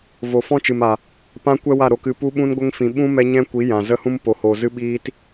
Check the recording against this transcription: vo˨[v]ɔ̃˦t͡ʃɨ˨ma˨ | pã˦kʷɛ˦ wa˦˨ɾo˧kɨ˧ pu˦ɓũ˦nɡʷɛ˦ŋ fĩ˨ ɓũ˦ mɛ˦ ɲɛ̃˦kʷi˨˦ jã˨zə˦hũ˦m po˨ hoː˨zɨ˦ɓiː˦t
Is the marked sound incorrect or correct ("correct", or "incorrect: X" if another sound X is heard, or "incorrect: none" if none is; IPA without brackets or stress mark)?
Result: incorrect: f